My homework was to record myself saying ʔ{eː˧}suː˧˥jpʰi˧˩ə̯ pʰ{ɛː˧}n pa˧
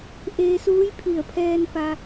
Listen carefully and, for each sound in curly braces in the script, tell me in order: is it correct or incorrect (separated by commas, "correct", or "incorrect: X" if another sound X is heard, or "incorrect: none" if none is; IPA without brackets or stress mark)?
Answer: correct, correct